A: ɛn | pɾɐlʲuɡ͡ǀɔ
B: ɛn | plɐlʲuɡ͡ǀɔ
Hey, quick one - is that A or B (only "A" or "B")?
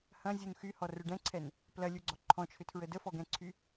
B